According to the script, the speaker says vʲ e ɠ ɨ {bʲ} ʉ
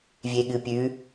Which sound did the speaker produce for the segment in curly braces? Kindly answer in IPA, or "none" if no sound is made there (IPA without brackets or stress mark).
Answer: pʲ